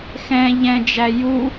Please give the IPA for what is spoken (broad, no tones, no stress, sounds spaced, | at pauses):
x ɛ̃ ʎ ɛ̃ d͡ʒ æ j u